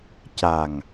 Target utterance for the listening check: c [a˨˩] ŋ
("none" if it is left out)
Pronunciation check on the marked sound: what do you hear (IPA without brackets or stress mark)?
a˨˩